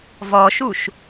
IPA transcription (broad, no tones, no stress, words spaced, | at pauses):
vɔʃuʃ